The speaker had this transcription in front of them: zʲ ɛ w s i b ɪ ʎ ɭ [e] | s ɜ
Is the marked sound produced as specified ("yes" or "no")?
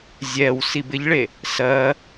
yes